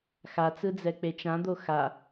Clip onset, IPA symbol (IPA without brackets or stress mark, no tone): x